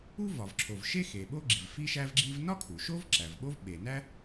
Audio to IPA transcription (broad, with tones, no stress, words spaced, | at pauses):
u˥vɒ˩vǁʰo˩v ʃe˥xe˩ ɓo˥ɡ͡ǁi˩v fi˥ʃæ˥vɡ͡ǁi˥v nɒ˥kʰu˩ ʃo˥v ǁæ˩vɓo˥v ɓe˩næ˥